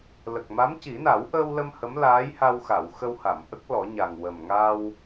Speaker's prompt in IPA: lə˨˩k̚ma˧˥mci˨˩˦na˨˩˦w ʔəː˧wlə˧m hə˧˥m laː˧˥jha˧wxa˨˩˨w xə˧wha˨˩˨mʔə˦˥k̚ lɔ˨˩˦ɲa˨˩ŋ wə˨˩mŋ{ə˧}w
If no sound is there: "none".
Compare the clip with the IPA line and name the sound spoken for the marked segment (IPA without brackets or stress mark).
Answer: a˧